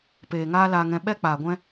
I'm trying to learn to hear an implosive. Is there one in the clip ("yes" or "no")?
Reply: yes